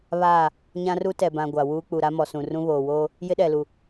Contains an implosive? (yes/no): yes